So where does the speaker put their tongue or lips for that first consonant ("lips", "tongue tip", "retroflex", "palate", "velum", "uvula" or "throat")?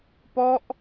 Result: lips